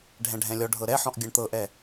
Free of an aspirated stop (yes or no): yes